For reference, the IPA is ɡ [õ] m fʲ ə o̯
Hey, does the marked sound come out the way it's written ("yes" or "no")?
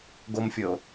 no